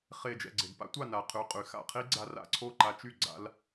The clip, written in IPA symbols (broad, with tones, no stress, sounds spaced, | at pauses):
χ e˧˩ d͡ʒ ɛ̰˧˩ ɡ͡ǀ e˩ d p a̰˥ tʷ a˥˩ n a˩ qʰ y˩˧˩ qʼ y˩ x a̰˥˩ qʰ i˥ ɡ͡ǀ a˧ r a̰˥˩ ǀʰ o˥˩ ǃ a˧ t͡ʃ y˥˩ ɡ͡ǀ a̰˧ l